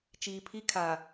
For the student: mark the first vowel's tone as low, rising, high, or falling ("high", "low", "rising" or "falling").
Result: low